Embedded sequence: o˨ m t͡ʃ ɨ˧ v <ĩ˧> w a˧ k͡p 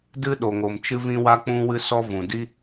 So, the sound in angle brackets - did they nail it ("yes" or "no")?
yes